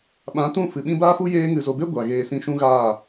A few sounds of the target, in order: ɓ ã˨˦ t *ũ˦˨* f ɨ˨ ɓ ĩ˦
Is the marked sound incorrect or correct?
correct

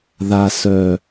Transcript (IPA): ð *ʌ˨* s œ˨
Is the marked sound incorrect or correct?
incorrect: a˨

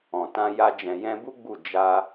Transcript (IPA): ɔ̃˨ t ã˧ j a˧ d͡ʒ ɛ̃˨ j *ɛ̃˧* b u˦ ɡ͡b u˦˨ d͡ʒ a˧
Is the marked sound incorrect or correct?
correct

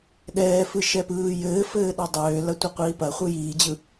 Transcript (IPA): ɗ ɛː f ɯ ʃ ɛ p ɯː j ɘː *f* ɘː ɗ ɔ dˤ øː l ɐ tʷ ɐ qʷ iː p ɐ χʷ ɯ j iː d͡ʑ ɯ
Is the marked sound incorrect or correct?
correct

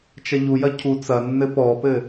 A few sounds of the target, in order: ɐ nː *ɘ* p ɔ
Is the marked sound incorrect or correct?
correct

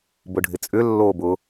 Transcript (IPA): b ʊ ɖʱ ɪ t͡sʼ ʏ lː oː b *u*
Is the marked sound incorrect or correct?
incorrect: ʊ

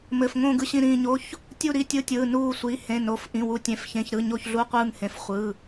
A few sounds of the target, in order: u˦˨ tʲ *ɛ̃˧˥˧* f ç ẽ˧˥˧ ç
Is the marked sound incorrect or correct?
incorrect: ẽ˧˥˧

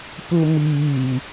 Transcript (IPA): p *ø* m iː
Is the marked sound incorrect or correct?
incorrect: u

